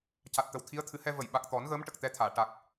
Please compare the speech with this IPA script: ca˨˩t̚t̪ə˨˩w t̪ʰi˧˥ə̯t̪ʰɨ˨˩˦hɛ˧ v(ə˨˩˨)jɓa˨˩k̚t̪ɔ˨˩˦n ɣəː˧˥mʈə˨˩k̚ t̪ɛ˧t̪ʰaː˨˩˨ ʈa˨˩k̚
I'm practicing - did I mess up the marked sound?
no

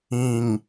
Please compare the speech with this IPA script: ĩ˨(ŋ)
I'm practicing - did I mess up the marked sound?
no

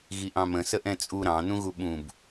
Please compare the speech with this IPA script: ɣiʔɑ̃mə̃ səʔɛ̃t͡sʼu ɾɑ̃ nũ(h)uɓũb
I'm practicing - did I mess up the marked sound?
yes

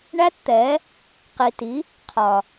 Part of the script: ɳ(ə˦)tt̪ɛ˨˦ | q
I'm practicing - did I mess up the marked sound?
yes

